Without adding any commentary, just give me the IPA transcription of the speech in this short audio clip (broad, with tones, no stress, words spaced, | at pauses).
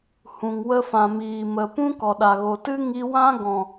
hũ˨ŋwə˧fã˨ miː˨mə˨pũ˦ kɔ˨ɗa˨ɣo˨tɨ˦ ŋi˧wã˦ ɡɔ̃˨